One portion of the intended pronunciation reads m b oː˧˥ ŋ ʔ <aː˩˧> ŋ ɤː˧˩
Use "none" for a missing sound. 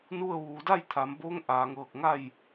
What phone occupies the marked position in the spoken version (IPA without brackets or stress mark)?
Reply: aː˩˧